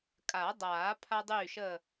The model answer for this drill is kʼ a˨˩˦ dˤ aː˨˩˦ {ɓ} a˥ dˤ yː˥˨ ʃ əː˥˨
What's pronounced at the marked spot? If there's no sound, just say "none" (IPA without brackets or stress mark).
pʰ